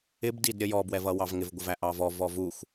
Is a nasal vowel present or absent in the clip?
absent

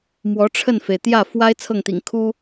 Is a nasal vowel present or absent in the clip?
absent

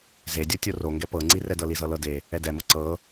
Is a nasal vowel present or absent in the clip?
absent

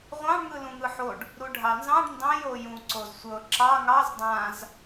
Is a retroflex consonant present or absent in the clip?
present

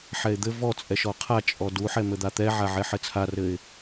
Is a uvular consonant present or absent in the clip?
present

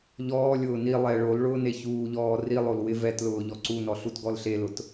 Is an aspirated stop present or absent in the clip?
absent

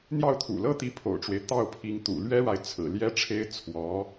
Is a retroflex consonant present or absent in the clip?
present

